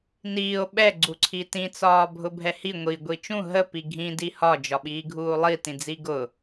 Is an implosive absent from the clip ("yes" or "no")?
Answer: no